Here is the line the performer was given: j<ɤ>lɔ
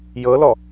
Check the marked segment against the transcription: correct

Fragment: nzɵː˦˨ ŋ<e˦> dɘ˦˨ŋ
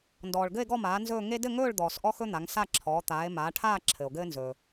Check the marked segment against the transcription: correct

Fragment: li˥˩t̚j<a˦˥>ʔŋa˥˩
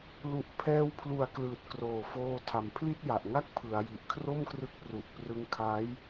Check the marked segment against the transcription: incorrect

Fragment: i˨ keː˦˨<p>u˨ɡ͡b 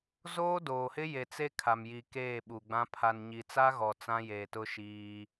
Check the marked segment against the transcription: incorrect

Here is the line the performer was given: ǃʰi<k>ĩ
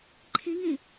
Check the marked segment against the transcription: incorrect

